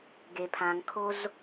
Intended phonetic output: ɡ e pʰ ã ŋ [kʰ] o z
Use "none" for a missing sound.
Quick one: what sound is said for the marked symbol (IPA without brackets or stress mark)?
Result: kʰ